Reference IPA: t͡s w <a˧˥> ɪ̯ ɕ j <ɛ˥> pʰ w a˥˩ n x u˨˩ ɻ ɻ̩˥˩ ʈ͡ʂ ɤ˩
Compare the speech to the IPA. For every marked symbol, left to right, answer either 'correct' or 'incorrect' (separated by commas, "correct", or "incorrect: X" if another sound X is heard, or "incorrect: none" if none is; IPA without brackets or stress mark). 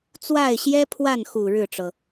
incorrect: a˥˩, correct